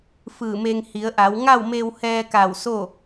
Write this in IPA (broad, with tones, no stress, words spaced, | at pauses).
fɯː˧˩me˧ŋ hi˩˧ə̯ʔa˩˧w ŋa˥˨wme˧whɛː˧ka˧˩w so˥˨